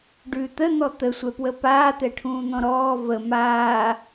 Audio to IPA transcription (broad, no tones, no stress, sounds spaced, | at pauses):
ɖ ʉ t̪ ə n̪ ɔ t̪ ə sʷ ɛ p w ə p aː t̪ ɛ ʈʰ ũː n̪ ɔ̃ ɾ ɔː v ə m aː